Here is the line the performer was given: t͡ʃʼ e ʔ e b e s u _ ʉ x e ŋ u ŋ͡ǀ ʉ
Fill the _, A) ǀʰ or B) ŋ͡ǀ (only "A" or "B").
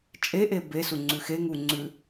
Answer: B